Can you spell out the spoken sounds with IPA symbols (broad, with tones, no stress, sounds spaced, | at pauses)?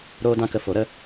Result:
ɾ oː˦ d ã˦ k ə˧ f o˨˦ ɾ ə˦